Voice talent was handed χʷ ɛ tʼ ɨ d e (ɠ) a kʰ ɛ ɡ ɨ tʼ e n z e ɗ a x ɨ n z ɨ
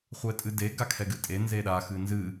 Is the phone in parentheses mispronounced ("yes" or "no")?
yes